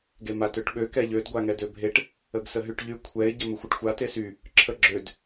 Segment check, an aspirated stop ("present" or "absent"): present